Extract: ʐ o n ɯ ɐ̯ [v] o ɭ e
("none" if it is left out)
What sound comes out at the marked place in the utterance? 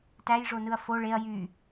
f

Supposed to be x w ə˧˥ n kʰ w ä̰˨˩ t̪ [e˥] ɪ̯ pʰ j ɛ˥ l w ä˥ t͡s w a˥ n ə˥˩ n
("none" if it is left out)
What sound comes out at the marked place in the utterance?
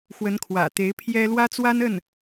e˧˥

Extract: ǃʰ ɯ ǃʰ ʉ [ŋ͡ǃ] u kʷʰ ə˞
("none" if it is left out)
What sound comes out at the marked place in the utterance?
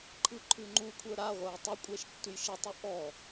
ŋ͡ǃ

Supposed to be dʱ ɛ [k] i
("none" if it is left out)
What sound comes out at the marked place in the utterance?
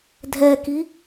k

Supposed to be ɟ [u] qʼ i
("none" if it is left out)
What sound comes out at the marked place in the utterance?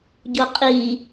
o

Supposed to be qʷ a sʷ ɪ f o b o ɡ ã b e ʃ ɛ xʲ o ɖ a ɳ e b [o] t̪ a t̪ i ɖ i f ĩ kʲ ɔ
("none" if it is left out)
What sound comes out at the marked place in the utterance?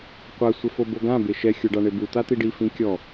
u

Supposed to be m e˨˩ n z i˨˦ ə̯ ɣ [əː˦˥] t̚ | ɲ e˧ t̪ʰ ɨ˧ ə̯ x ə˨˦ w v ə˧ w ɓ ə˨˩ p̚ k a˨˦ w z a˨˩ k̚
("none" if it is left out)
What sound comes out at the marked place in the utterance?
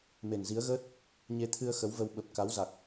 əː˦˥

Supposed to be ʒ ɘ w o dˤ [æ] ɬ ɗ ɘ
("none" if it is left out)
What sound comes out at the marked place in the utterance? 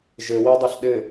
ɐ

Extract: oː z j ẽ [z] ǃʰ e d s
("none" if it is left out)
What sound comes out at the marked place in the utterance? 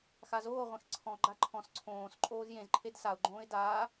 z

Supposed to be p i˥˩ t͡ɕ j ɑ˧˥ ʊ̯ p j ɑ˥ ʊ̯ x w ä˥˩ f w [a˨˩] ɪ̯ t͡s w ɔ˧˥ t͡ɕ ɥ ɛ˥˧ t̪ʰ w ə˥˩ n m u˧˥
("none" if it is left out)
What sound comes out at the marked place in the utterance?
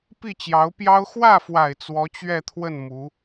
a˨˩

